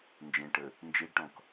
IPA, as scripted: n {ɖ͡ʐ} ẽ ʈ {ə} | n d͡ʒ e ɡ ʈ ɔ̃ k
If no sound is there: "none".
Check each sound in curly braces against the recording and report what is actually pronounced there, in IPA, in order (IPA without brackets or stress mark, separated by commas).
d͡ʒ, ə